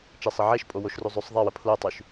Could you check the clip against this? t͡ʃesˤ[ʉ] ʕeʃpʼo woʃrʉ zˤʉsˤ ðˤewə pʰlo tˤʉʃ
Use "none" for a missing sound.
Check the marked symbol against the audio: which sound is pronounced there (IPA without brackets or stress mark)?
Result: ə